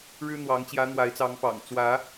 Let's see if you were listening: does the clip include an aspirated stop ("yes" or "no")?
no